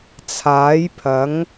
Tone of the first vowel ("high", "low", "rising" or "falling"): rising